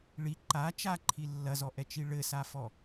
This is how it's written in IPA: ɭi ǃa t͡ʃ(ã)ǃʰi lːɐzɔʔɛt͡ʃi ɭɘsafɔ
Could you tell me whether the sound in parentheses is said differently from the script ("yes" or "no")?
yes